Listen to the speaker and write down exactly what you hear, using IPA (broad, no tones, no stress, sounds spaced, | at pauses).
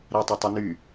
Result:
ɾ æ tˤ y tˤ u n y